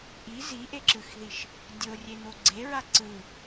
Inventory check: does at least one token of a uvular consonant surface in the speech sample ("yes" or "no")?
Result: no